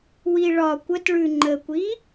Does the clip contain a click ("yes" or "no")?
yes